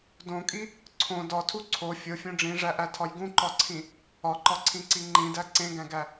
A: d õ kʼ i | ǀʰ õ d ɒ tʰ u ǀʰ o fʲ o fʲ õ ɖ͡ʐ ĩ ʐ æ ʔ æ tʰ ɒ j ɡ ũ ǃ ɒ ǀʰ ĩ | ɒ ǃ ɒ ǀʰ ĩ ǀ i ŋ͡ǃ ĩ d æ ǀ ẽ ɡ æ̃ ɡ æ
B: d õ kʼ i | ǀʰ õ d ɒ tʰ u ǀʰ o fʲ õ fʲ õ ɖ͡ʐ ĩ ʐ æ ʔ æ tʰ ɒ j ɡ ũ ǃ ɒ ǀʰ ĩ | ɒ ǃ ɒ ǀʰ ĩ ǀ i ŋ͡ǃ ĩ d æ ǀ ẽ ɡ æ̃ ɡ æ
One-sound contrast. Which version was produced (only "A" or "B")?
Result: A